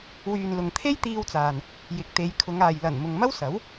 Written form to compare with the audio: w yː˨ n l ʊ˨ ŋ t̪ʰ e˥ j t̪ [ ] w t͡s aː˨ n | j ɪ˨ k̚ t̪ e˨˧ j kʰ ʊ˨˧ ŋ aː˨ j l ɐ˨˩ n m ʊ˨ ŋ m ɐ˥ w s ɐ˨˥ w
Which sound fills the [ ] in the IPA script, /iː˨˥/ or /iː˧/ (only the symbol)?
iː˧